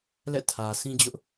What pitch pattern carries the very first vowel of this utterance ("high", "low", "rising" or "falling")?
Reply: falling